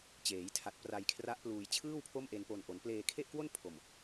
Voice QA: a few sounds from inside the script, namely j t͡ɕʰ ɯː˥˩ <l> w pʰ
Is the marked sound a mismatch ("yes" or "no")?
yes